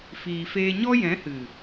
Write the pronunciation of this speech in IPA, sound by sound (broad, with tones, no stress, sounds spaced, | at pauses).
f iː˨ f eː˧ ɲ ɔ˦ j ɛ̃˨˦ h ɨ˨